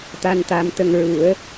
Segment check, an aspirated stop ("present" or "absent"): absent